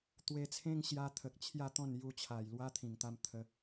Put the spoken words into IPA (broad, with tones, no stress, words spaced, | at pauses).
t̪we˧t͡sʰẽ˦ŋɕja˧t̪ʰə˨k̚ t͡ɕʰja˥˧t̪ɔ̃˥˧nju˧t͡ɕʰa˨˩j lwa˦t̪ʰĩ˨˩ŋt̪a˧m t̪ʰə˨˦